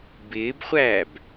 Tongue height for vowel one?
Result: high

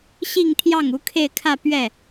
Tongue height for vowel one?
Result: high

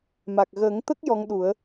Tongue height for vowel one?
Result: low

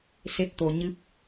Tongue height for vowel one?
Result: mid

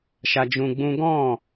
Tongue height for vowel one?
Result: low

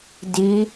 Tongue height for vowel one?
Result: high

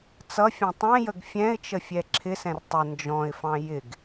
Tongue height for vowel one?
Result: mid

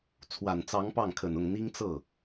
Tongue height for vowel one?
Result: low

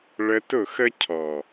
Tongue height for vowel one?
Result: mid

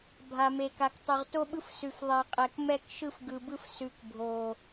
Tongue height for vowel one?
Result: low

